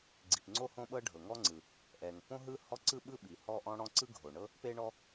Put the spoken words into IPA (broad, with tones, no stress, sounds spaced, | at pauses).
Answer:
ɡ͡ǀ i˩ p ŋ͡ǀ o˥ h õ˥ ɓ ɤ˥ ɖʱ ɤ˩ ŋ ɔ˥ ŋ͡ǀ ɯ˩ | ʔ ɛ˩ ŋ p õ˥ ɦ ɯ˥ h ɔ˥ ǀ ɯ˥ ɓ ɯ˥ ɓ i˩ h ɔ˥ ʔ ɔ̃˥ ɽ ɔ̃˥ ǀ ɯ˥ ɡʱ o˩ ɳ ɤ˥ | p e˥ ɳ ɔ˥